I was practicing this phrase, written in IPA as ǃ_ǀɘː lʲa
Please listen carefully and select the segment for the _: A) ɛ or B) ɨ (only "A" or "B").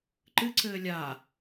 B